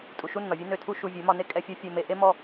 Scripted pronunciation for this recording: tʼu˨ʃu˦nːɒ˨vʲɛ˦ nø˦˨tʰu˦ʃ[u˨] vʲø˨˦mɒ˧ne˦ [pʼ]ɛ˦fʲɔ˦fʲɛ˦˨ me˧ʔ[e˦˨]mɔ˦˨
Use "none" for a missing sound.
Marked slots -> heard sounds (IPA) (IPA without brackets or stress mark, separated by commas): u˧, kʼ, e˦